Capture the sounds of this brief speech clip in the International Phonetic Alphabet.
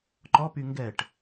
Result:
ǃ ɔ p y ŋ ɡ ɛ ʈ

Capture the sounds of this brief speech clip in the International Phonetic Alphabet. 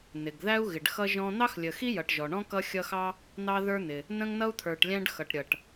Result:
n ɪ˩ ɡ ð æ˥ u̯ ɣ ɪ˨ ɖ x ʌ˥ ʒ ɔ̃˥ n̪ ɑ˥ x lʲ ə˨ x i˥ j ʌ˨ ʈ ʒ ɔ˩ ɳ ɔ̃˥ k ʌ˦ xʲ ʌ˦ x ɑ˥ | n̪ ɑ˦ ð ə˞˦ n̪ ɪ˨ | n ə̃˥ ŋ n ʌ˥ u̯ t̪ʰ ə˞˨ ʈ lʲ æ̃˦ ɖ x ʌ˩ ʈ ɾʲ ʌ˨ ʈ

